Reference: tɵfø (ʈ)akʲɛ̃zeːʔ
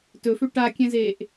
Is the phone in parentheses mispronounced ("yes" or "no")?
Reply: no